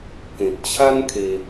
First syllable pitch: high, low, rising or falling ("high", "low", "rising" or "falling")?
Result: low